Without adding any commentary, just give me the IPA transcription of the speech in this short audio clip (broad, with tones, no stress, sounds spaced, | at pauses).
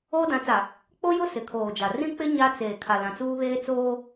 oː˦ d ã˨˦ t͡s a˨ | k͡p o˦ j ʊ˦ s ɪ˨ kʰ oː˨ d͡ʒ a˨ r ĩ˦ k͡p ɪ˦ ɲ a˦ t͡s eː˨ kʰ a˨ l ã˨ t͡s uː˦ β eː˦ t͡s oː˦